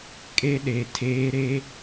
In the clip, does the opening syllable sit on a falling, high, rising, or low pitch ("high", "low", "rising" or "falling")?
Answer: high